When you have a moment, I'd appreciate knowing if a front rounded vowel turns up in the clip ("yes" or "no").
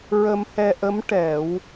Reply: no